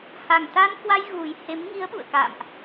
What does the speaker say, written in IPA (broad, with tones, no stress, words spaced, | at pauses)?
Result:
ha˨˩ŋt̪a˧nkwa˧j ɣu˨˩jhe˨˦m ŋi˨˦ə̯ɓṵ˧˨ə̯ ka̰ː˧˨mʔ